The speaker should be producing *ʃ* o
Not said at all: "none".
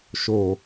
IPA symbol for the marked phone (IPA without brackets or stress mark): ʃ